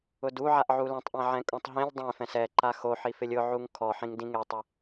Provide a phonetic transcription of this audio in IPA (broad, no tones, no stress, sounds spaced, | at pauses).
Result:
ʊ d u ʕ a ʔ ʕ u l ɛ̃ tˤ ʔ ɛ̃ ʕ ɛ̃ kʼ ũ tˤ ɦ ĩ lʲ dˤ ẽ f ɛ̃ s ɛ ǃ a x o ħ i f ɪ lʲ ʊ ʕ u ŋ kʰ ɔ ħ ĩ ŋ d ĩ ŋ e tˤ e